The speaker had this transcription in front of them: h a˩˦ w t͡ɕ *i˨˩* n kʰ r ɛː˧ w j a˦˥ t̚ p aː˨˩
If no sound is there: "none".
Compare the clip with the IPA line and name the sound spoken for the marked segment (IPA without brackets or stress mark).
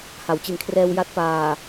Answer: i˨˩